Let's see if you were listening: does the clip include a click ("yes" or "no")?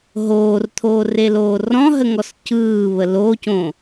no